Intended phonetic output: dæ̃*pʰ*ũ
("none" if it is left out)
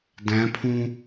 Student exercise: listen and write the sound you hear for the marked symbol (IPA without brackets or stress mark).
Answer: pʰ